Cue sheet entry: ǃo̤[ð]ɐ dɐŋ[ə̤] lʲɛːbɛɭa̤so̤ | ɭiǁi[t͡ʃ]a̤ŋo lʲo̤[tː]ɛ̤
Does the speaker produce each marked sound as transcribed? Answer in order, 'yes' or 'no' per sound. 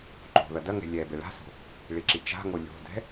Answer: yes, no, yes, no

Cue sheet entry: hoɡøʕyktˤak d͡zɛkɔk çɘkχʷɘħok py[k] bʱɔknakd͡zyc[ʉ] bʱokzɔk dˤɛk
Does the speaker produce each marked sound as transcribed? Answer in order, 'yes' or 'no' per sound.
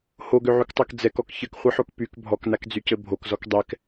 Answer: yes, no

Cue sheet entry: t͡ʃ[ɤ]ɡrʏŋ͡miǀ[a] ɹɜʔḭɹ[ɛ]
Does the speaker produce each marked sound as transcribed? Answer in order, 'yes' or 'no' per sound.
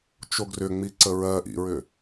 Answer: no, no, no

